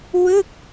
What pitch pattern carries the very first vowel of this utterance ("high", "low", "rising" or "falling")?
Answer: falling